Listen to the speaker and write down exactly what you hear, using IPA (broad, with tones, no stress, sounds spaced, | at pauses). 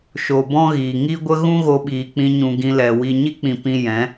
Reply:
ʃ o˨ b ɔ̃˦ ɣ iː˨ ŋ i˦ ɡʷ ə˦ ɣ ũ˦ ɣ o˧ ɓ iː˨ k͡p ĩ˧ ɲ ũ˨ ɡ ĩ˧ l ɛ˨ w i˨ ɲ i˦ k͡p ĩ˨ p ĩ˧ j ɛ̃˨˦